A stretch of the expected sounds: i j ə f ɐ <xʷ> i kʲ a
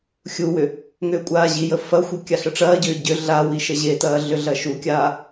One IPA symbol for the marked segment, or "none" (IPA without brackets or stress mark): xʷ